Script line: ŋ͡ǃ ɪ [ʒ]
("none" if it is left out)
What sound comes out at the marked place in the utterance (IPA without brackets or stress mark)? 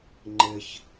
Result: ç